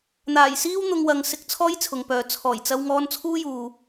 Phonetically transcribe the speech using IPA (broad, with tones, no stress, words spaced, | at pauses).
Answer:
n̪aː˨˩jsiː˥w n̪ʊ˧ŋwɐ˨˧ŋ sɪ˧k̚t͡sʰɔː˥jt͡sʰʊ˨ŋpœː˨ t͡sʰɔː˨˩jt͡sɐ˧wŋɔː˧n t͡sʰuː˥juː˨